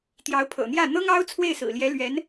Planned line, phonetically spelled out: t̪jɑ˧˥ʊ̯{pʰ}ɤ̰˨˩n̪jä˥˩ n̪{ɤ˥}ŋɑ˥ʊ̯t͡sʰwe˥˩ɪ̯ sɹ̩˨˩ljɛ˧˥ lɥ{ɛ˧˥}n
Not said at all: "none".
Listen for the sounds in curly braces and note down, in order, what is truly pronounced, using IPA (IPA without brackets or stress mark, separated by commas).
pʰ, ɤ˥, ɛ˧˥